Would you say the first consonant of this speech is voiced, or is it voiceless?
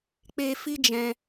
voiceless